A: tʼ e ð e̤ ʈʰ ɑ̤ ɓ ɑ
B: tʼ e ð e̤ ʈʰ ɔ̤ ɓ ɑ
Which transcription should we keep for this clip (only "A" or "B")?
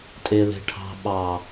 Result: A